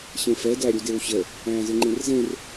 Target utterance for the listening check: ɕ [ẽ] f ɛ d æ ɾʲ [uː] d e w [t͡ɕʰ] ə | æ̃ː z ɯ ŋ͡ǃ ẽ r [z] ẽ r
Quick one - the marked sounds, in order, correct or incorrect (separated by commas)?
correct, incorrect, incorrect, correct